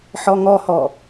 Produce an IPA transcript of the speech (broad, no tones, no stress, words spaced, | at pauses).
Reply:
ħɔŋɔhɔ